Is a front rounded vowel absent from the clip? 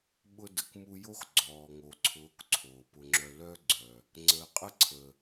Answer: no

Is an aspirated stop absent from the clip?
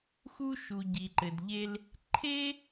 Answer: no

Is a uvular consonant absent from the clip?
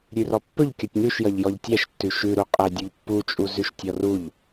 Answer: no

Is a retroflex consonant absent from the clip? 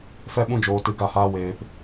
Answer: yes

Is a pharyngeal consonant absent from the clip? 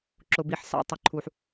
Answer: no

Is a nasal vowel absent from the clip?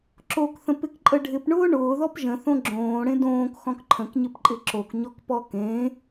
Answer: no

